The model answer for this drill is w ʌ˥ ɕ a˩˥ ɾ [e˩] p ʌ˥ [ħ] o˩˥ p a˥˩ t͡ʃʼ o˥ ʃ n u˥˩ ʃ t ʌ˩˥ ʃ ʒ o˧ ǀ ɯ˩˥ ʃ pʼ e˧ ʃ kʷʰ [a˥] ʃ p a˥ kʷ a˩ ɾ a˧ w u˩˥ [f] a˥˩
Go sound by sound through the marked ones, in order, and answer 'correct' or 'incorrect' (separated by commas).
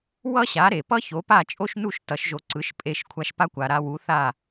correct, incorrect, incorrect, incorrect